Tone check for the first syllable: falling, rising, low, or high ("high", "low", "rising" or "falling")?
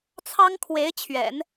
high